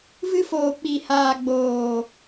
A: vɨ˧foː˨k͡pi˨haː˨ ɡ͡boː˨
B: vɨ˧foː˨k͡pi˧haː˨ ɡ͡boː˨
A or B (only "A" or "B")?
A